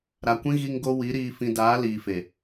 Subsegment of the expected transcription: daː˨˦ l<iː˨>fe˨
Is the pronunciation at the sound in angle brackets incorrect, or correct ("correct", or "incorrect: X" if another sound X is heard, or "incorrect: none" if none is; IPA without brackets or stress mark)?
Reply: correct